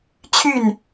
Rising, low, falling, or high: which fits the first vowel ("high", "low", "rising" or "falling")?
falling